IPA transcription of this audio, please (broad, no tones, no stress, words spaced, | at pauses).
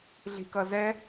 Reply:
ɮi̤kʌzɛ